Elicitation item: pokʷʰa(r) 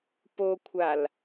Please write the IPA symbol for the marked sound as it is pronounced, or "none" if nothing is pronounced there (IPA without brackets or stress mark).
l